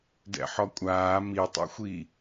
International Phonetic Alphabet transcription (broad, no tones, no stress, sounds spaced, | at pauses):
d ɛ̰ ħ ɔ kʷʼ aː m i tˤ ṵ xʷ i